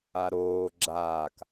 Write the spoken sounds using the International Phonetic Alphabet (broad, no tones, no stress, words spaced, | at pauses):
aɾoː ɡ͡ǁaːk